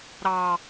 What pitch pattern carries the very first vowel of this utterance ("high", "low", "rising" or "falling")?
low